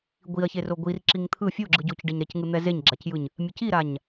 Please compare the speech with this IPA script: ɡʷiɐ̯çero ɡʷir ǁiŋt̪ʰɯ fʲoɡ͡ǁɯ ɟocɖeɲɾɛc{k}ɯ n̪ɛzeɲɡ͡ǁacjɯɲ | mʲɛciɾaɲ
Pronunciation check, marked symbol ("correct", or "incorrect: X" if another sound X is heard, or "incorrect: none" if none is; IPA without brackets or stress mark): incorrect: ŋ